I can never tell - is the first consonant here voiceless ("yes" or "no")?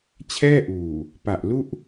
yes